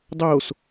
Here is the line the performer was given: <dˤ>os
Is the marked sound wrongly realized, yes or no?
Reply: no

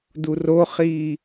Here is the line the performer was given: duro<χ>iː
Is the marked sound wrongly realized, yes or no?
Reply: no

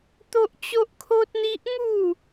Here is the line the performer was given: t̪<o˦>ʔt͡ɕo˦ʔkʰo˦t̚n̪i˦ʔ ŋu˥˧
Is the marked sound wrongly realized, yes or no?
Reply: no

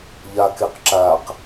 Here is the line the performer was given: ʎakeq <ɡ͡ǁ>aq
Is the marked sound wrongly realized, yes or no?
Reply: yes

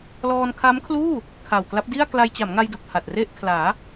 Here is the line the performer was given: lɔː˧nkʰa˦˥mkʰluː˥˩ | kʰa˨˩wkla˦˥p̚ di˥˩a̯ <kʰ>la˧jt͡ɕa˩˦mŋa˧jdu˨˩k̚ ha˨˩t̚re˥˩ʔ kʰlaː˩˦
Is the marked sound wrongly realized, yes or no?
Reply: yes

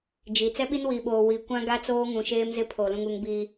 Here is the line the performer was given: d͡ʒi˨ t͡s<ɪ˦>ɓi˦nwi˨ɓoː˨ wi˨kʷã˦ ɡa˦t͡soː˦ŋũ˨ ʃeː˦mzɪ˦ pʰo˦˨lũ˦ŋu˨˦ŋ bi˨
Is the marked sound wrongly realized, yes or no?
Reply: yes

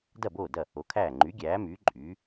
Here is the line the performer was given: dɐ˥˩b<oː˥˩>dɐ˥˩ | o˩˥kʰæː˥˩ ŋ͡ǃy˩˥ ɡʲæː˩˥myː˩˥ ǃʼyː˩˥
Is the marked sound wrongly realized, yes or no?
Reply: no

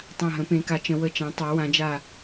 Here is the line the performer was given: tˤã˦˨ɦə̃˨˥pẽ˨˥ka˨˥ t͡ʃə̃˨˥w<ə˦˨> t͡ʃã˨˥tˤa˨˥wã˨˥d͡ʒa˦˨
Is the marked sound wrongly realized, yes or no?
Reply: no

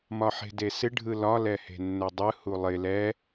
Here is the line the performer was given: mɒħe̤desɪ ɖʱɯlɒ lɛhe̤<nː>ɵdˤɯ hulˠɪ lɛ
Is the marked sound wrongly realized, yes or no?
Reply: no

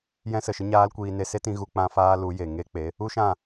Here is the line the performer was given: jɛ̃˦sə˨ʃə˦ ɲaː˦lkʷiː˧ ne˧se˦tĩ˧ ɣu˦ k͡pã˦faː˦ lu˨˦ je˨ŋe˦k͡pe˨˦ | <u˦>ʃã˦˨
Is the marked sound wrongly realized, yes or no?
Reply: no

